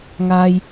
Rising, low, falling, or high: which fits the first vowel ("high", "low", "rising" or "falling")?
high